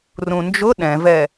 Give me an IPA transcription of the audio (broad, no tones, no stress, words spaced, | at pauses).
rũnd͡ʒʊ ɗɛ̃vɛ